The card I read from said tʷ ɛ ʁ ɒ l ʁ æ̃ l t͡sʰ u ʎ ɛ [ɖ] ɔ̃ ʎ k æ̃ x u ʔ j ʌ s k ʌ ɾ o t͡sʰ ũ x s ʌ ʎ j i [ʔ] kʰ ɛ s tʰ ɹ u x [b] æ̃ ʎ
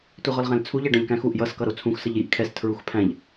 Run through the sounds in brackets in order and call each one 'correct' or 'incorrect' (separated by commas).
correct, correct, incorrect